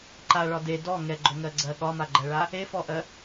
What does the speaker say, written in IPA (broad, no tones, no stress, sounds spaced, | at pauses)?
ǃ a ɭ ɒ d e d ɔ ŋ ɛ ɡ͡ǃ o ŋ ɜ ɡ͡ǀ ɜ ɠ ɒ m a ɡ͡ǃ ɜ ɭ a | e f ɔ ʔ ɜ